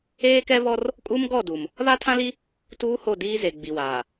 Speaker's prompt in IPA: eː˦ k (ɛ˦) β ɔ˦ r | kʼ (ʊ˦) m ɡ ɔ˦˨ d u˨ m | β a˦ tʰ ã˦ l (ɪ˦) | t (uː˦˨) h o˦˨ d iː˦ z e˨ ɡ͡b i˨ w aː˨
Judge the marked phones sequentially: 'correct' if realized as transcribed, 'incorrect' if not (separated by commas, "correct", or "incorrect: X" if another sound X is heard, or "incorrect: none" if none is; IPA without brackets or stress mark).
correct, incorrect: u˦, incorrect: i˦, incorrect: uː˦